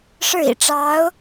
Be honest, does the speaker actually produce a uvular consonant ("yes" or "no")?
no